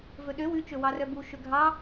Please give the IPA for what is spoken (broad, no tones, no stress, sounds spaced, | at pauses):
v ɵ ɗ ø w ʉ t͡ʃ ɵ w ɑ r œ b u ʃ ɵ ɡʱ ɑ